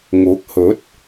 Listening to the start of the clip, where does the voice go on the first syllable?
rising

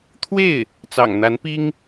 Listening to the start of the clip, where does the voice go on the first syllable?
falling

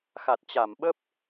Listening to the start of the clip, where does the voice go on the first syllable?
low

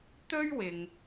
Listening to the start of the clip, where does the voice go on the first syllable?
high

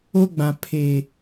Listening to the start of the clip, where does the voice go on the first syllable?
high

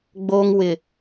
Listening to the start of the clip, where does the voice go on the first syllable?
high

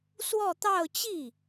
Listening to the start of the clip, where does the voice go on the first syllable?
falling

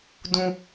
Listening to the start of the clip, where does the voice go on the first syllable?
low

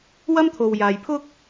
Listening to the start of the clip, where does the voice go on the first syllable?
high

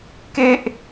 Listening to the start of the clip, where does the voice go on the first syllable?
high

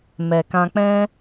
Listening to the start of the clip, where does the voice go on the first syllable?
low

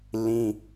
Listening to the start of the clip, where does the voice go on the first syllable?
high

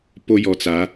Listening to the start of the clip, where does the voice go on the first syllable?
high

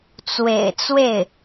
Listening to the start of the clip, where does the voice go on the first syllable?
low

